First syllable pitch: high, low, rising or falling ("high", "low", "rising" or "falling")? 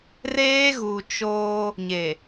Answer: high